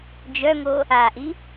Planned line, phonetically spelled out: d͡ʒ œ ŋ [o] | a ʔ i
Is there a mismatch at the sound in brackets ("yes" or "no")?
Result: no